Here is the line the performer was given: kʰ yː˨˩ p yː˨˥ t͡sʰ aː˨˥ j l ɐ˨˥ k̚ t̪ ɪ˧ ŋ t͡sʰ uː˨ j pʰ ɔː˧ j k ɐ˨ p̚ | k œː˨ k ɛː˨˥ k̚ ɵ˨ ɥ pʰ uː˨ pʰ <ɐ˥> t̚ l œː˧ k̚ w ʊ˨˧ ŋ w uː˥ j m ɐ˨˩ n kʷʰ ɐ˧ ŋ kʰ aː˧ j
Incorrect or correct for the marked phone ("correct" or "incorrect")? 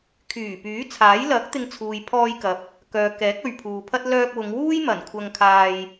correct